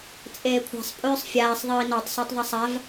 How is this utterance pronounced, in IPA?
t͡sʼ eː kʷʰ ɛ̤ sˤ pʼ ʉː sˤ fʲ aː sˤ ðˤ iː n ɔ tˤ s o tˤ ðˤ ɛ sˤ a v

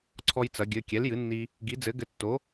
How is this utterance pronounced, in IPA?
ǀʰ ɔ˧ j t͡s ɐ˩˧ ɡʲ ɘ˩˧˩ kʲ ɛ˩˥ l j ɨ˩˥ nː i˧ | ɡ i˩˥ d͡z ɘ˩˥ ɡ ɘ˧ tː o˩˥

